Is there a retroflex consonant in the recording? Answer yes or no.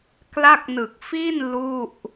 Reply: no